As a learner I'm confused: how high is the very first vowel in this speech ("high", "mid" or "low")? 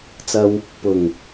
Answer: low